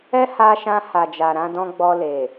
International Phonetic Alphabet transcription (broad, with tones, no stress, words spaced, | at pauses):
ɛ˦ha˧ʃã˧ ha˨d͡ʒa˨ ɾã˨˦dɔ̃˦ ɡ͡bɔ˧le˨